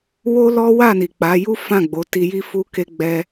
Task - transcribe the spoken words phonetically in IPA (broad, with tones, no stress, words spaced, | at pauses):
wo˦lɔ˦ wa˦˨ni˨k͡pa˨˦ju˦ fã˦˨ɡ͡bo˨˦ti˧ji˦ fu˧ke˧ɡ͡bɛ˧